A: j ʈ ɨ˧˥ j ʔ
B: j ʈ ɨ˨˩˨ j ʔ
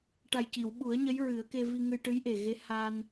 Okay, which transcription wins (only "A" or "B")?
A